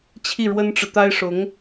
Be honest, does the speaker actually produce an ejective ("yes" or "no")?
no